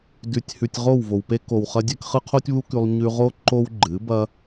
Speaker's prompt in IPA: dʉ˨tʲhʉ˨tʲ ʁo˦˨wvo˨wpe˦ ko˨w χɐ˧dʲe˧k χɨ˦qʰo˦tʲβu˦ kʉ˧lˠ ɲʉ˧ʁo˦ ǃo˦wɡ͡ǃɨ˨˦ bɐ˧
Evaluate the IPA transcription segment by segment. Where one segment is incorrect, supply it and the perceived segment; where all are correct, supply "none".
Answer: none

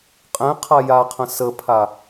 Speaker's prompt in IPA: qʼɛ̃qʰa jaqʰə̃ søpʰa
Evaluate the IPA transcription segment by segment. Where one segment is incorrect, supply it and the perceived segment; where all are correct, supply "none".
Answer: ø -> ə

